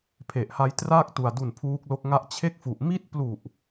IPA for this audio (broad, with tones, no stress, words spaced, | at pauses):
pʰe˨˩ʔha˧j tra˥˩k̚tu˨˩a̯ du˨˩n pʰuː˦˥k̚lo˦˥k̚ ŋa˦˥ʔt͡ɕʰe˥˩k̚fu˨˩ʔ mi˥˩t̚ plu˨˩ʔ